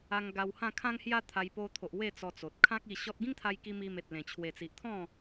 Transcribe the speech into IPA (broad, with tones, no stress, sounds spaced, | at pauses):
a˧ ŋ ɡ a˧ w h ã˥˧ kʰ ã˦ ŋ h j a˦ t̪ʰ a˧ j p o˧ t̪ʰ o˨ ʔ w e˥˧ t͡s ɔ˧ t͡s o˨ t̚ kʰ ã˦ k̚ i˧ ɕ ɔ˦ t̚ ɡ ĩ˦ ŋ t̪ʰ a˧ j k i˧ m i˧ m e˨ t̚ l ẽ˨˩ t͡ɕʰ w e˨˩ t͡s i˨ ʔ t̪ʰ ɔ̃˥˧